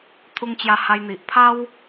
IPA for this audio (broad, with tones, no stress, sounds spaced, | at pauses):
t̪ʰ u˧ ŋ t͡ɕ j a˧ h a˧ j n̪ i˨ ʔ pʰ a˦ w